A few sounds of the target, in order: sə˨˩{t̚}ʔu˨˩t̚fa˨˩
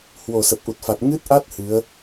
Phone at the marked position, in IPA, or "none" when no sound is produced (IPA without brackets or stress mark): p̚